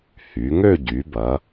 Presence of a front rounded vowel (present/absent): present